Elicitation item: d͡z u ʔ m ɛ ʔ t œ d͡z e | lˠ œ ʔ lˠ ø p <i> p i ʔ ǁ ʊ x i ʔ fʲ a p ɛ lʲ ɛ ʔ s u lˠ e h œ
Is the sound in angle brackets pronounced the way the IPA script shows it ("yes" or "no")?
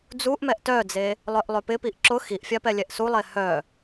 no